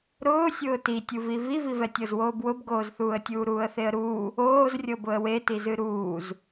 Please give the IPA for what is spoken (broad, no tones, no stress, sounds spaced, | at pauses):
ɾ ʊː sʲ ʊː t i tʲ u v i v i v i v ɛ tʲ ɤ z w oː b w ʊ b ɡ oː z θ uː ə̯ tʲ uː ɾ uː ə̯ θ e ə̯ ɾ uː | oː z rʲ ɤ b ʊ ə̯ w e t i z ɨ ɾ uː z